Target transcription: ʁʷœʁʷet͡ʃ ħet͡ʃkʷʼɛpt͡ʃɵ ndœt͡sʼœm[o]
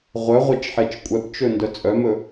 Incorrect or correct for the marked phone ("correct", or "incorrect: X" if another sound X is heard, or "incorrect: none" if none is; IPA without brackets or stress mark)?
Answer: incorrect: ɵ